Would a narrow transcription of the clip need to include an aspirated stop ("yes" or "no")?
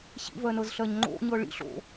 no